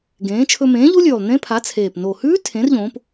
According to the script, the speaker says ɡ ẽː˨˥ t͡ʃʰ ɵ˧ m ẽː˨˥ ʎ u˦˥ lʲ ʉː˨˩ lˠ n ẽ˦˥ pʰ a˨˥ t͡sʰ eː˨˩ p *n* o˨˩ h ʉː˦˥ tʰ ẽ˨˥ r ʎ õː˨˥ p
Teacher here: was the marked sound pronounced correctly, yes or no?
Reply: yes